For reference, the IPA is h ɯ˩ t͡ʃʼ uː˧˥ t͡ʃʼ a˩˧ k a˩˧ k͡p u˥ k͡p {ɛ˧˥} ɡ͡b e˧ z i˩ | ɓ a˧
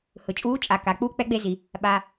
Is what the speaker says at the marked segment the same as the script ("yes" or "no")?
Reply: yes